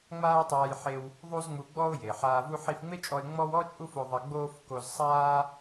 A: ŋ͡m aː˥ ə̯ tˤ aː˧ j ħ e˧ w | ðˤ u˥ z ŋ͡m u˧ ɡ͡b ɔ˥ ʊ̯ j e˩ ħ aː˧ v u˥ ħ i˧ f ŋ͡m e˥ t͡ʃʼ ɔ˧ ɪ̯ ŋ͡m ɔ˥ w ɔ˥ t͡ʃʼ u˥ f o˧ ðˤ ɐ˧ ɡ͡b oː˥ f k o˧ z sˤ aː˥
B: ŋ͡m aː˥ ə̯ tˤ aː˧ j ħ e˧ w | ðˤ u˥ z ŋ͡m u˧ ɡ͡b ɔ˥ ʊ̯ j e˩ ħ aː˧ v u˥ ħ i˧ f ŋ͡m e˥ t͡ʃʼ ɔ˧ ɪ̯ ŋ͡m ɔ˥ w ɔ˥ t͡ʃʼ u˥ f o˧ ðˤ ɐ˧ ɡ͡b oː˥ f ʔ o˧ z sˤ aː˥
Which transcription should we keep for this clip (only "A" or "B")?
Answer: A